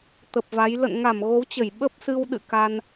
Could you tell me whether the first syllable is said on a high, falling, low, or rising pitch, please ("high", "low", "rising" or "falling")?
low